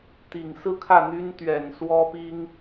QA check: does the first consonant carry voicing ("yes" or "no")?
no